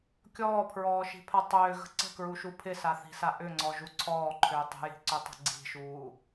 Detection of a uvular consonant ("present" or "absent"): absent